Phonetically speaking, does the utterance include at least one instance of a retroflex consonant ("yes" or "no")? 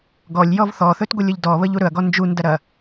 no